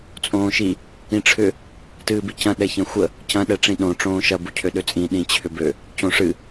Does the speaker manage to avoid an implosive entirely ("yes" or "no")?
no